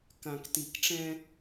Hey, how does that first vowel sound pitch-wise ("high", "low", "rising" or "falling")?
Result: low